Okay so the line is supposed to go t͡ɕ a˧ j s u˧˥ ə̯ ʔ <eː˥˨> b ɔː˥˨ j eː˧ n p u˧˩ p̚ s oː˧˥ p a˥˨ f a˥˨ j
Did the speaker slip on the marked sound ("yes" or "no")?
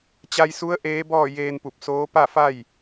yes